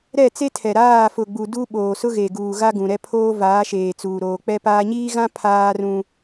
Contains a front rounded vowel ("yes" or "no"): no